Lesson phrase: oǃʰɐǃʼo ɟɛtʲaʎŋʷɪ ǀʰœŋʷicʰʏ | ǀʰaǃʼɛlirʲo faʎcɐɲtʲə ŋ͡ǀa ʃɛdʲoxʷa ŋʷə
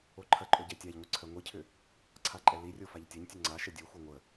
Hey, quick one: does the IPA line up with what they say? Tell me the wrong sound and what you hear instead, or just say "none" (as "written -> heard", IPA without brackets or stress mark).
c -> tʲ